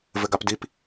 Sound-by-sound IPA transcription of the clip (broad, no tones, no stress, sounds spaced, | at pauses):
v ɘ ɡ a p d i p